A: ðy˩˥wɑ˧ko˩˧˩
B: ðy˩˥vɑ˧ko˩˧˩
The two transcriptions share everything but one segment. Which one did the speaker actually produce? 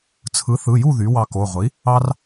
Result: A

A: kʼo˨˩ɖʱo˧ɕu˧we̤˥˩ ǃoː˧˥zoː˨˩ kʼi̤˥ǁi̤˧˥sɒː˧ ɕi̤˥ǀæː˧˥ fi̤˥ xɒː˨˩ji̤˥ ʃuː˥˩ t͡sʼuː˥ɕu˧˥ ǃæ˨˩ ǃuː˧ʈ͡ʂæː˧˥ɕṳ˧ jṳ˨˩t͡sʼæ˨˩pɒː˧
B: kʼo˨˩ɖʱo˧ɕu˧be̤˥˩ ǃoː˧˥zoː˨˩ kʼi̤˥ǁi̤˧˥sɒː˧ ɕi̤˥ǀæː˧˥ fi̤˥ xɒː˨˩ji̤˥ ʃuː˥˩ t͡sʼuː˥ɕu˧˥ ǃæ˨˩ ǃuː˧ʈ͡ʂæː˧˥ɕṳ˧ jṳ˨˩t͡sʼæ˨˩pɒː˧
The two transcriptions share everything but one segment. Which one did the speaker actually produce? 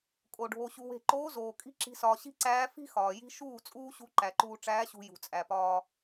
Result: A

